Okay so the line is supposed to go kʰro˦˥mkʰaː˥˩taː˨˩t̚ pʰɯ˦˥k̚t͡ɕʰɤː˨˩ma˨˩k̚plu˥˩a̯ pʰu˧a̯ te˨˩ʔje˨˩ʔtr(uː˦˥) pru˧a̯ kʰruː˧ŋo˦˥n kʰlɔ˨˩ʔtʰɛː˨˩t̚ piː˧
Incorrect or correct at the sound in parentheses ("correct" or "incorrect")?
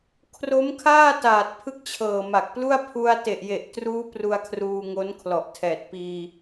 correct